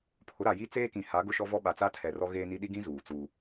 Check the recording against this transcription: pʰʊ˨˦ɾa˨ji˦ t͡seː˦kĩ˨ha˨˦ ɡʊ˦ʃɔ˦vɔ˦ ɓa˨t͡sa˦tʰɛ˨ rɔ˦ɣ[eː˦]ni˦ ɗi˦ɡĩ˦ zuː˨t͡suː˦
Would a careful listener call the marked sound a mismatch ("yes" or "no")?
no